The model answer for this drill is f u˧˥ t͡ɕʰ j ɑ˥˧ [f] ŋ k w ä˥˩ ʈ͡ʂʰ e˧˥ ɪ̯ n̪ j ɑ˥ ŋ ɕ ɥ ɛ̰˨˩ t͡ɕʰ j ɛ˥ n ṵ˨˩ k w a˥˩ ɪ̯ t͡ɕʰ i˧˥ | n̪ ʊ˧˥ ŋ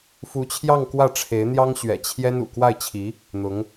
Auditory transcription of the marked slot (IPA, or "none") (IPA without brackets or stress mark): none